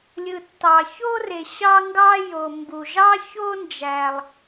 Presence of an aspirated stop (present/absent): absent